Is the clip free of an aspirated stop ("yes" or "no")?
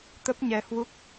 yes